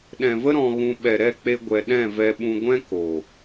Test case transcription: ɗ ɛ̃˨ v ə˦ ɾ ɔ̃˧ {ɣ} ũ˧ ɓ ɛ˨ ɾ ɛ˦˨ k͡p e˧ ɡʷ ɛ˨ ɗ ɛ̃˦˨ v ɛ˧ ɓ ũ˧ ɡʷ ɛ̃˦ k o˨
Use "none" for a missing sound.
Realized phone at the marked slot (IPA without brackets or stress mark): ɣ